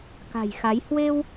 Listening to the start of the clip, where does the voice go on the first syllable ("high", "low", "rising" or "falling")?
low